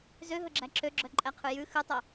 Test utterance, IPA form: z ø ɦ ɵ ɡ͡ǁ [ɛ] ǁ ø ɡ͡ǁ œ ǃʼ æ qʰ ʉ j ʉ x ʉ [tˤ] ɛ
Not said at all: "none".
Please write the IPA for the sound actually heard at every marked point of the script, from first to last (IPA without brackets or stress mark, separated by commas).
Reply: æ, tˤ